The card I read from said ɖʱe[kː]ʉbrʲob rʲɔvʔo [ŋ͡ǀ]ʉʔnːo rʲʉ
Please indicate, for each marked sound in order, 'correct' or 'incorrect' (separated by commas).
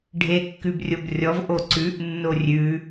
correct, incorrect